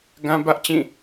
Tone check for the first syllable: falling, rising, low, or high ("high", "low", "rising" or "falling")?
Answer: high